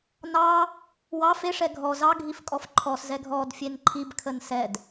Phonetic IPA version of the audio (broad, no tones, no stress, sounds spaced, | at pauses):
n ɑ | w ɑ f e ʂ ɛ ɡʱ ɔ z ɑ ɡʱ i f kʼ ɔ f ǃʰ ɔ s z ɛ ɡʱ ɔ d fʲ e n ǃʰ i b kʰ ə n s ɛ d